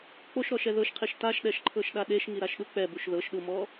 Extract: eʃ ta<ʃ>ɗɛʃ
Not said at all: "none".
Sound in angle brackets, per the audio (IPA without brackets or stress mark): ʃ